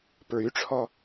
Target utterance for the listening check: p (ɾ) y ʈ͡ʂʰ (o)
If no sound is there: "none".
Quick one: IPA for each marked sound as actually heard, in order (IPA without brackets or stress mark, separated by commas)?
ɹ, ɔ